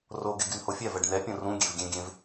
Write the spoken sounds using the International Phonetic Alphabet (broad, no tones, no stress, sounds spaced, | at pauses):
r o ɡ e ɡ y n h o fʲ ɛ v ɛ ɖ n ɛ pʲ õ r ũ ɡʲ e v ɡʲ ẽ ɡʲ ẽ v